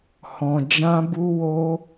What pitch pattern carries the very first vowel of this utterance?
low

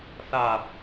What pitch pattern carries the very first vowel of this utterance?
low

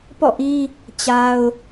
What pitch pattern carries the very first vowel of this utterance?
falling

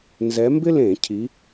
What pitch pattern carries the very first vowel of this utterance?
rising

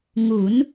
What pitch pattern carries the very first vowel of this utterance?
rising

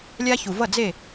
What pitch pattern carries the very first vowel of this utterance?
high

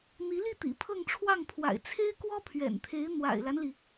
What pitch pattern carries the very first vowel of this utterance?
rising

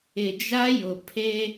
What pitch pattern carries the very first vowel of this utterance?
low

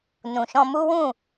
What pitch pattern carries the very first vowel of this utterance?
low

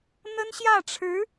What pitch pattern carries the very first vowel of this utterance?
high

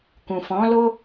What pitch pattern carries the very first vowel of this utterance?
low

